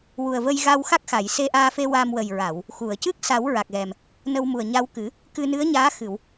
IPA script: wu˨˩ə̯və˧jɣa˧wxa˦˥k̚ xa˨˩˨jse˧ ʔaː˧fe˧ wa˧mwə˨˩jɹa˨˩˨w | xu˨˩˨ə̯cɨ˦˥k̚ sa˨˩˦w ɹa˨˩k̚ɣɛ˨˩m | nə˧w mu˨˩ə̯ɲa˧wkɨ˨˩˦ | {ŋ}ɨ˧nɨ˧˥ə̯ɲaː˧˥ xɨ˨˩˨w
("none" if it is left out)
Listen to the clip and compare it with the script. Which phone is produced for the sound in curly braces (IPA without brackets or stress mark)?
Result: k